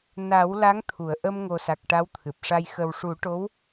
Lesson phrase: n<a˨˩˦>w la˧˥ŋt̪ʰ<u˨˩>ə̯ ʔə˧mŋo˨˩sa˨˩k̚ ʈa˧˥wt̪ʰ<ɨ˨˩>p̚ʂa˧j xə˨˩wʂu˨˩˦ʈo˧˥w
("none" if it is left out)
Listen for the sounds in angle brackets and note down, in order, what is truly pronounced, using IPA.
a˨˩˦, u˨˩˨, ɨ˨˩

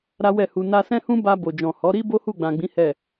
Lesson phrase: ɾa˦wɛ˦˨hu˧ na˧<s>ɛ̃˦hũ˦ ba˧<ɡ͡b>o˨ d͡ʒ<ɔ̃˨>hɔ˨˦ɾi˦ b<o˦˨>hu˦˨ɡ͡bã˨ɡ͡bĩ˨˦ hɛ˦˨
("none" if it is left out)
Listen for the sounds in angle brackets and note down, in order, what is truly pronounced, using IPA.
s, b, ɔ̃˨, o˦

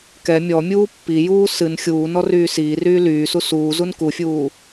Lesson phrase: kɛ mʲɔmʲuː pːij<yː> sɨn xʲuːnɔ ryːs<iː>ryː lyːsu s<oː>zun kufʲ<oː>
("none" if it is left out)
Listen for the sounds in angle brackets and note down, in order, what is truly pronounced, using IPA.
uː, iː, uː, uː

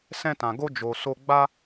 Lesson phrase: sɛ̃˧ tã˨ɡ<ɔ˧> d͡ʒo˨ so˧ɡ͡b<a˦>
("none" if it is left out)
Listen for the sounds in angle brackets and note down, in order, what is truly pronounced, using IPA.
o˧, a˦

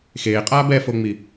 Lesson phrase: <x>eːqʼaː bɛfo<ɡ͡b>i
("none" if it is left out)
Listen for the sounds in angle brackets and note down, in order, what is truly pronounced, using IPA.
x, ŋ͡m

